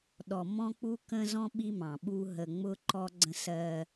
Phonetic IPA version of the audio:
ɗ ɔ˨ m ɔ̃˦ k͡p u˦ k ə̃˦ z ɔ̃˦ ɓ i˦ m ɑ̃˨ ɓ u˦ ɦ ə˨ ŋ͡m ʊ˦ ǃ ɔ˦ ɡ͡ǀ ə̃˦ s ɜ˦

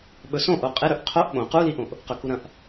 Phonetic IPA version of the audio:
ɓ ɵ s õ ʔ o qʼ e ɾ ɵ ʔ qʰ o ʔ ɓ õ q u l i ʔ õ ʔ | q ɵ k u ɾ ɐ̃ ʔ

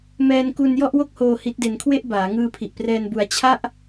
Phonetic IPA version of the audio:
m ɛː˧ n k u˧ n j ɔ˥˩ ʔ w o˥˩ k̚ h oː˧ h i˦˥ t̚ d e˧ n kʰ w e˥˩ ʔ b aː˩˦ ŋ ɯː˧ pʰ i˨˩ ʔ p r ɛː˧ n b u˧ a̯ t͡ɕʰ a˥˩ ʔ

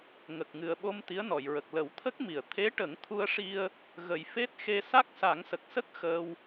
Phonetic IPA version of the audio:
ŋ ə˨˩ k̚ ŋ ɨ˨˩ ə̯ ɓ o˧ m t̪ i˧˥ ə̯ n ɔ˨˩˨ j ɹ ə˨˩ k̚ l ə˨˩˦ w t̪ʰ ə˦˥ k̚ m i˨˩˨ ə̯ t̪ʰ e˧˥ ʈ ə˨˩˦ ŋ t̪ʰ u˧ ə̯ ʂ i˧ ə̯ | ɣ ə˨˩ j f e˦˥ t̚ x e˧ s a˦˥ k̚ s a˨˩˦ ŋ s ə˨˩ k̚ s ə˦˥ k̚ x əː˧ w

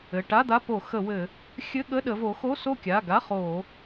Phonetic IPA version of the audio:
ɘ˩˧˩ ʈ a˧˥˧ d̪ a˧˥˧ p o˧˩˧ x ə˧˩˧ w ɘ˧˩˧ | xʲ ɘ˧˥˧ ɠ ə˧˥˧ ɗ ə˩˧ v o˩˧ x o˧˥˧ s o˥˨ kʲ a˩˧˩ ɡ a˧˥˧ χ o˧˩˧

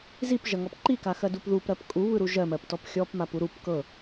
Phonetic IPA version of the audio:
z i p ʒ ɐ ŋ ɔ p ǃ i k a x ɜ d u p ð u p ɾ ɜ p kʼ u β ɯ ɾ u ʒ ɜ m ɜ p t ɔ p xʲ ɔ p m a p u ɾ u p k ɤ

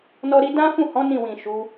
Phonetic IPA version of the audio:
n ɔ˦ ɾ i˦ d ã˦ f ũ˦˨ h ɔ̃˨˦ n ĩ˦˨ w ĩ˨ ʃ u˨˦

